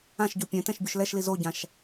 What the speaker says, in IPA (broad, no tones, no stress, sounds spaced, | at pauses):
ã ʃ ɟ u pʲ ɛ̃ t ɛ̃ ʃ bʲ u ʃ l ɛ ʃ l i z o ɟ ã ʃ